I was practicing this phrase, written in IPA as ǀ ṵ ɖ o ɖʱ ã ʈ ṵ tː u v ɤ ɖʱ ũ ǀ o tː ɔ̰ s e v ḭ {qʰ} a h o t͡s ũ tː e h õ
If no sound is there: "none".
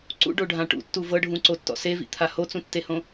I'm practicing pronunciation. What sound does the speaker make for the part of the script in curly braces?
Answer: t̪ʰ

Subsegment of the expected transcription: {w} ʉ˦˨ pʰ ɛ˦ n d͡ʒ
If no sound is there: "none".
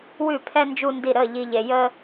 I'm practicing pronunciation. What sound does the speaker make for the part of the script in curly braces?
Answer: w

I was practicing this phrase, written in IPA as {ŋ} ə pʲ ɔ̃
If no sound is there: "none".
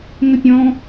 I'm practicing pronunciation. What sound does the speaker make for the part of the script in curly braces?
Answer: ŋ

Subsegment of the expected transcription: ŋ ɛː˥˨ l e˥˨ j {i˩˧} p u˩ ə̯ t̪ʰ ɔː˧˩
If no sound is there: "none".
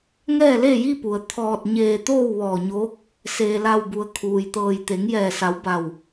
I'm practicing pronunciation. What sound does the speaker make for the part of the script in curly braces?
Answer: i˥˨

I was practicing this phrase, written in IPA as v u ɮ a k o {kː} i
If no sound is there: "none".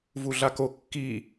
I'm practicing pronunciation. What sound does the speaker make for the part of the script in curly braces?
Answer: kː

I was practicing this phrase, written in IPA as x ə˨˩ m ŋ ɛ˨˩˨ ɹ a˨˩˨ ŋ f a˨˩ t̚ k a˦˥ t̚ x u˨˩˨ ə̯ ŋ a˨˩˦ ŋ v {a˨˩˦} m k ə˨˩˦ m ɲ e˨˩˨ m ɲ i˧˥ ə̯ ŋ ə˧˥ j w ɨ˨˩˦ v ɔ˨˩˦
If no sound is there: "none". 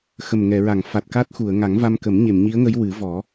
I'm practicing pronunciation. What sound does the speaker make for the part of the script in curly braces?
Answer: a˧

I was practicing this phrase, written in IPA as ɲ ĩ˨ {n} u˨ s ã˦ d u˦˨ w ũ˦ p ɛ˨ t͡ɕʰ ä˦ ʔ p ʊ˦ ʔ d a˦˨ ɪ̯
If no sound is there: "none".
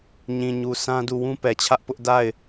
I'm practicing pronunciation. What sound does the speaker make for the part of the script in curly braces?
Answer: ɲ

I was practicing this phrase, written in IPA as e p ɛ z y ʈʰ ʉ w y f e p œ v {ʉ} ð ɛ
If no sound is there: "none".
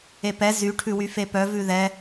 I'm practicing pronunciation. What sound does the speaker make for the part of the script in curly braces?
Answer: ʉ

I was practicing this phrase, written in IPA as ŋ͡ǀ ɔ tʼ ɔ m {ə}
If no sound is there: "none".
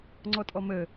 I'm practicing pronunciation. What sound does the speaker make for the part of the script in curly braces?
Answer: ə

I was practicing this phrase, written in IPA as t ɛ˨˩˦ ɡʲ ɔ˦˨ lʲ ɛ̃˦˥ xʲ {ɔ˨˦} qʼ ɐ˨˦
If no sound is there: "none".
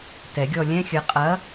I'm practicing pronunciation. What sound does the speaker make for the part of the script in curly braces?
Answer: ə˨˦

